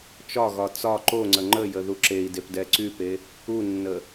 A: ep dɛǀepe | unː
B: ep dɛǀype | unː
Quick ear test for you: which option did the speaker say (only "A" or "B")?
B